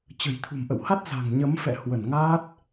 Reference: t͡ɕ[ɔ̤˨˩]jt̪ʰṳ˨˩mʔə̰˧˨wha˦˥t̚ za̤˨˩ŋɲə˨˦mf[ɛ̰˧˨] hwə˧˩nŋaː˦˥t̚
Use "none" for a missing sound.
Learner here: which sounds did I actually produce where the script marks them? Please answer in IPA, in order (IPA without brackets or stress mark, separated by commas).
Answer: ə̤˨˩, ɛ̰˧˨